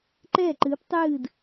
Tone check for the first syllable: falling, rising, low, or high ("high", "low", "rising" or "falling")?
falling